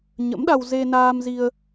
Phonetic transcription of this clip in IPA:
ɲə̰˧˥mɗa˧w ze˧naː˧mzi˧ə̯

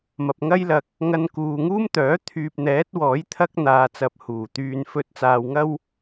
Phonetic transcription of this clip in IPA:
mɐ˨p̚ŋɐ˥jlɐ˨k̚ | ŋɐ˧nkuː˨ŋuː˥mt̪œː˨˥ t̪ʰyː˨p̚n̪ɛː˨˥t̚ wɔː˨˥jt̪ʰɐ˥k̚n̪aː˨ t͡sɐ˧p̚huː˨˩ t̪yː˨nfɵ˧t̚t͡saː˨w ŋɐ˥w

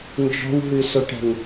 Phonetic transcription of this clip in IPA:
nd͡ʒɔ̤wɦʉsoʈɛ̤ŋ

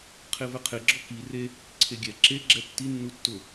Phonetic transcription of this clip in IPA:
qʰevɛqʰeɡ͡ǁɔ ki re | ǀʰeɡʲɛ ǁe ɡ͡ǁɛtːi nːutːʊ

